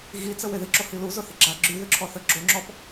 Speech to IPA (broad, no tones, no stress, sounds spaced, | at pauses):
ɣ i t͡s ə w e ð ɪ ǁ o h i l u z ʊ θ ɪ ɡ͡ǁ a ɡ͡ǁ y ð ʏ ǁʰ ɔ θ ə ɡ͡ǁ o ŋ͡ǁ ɔ p